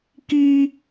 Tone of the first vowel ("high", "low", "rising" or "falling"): high